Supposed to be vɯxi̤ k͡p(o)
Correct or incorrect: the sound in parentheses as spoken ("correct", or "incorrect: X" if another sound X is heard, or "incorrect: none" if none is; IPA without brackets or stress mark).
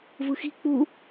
incorrect: u